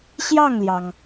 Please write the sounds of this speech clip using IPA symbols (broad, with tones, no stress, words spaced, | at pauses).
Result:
ɕjɑ˥˩ŋljɑ˩ŋ